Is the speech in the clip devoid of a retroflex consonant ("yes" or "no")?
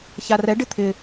no